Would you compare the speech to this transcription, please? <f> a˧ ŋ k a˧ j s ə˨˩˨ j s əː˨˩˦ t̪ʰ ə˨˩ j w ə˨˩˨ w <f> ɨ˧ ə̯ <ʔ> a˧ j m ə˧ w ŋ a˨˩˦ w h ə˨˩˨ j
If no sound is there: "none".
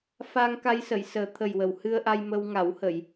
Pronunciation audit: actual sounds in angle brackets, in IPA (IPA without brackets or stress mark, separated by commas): f, h, ʔ